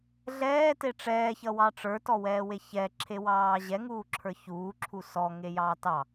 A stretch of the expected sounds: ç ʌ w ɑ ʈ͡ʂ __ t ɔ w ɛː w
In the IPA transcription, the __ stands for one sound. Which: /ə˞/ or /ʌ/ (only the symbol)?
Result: ə˞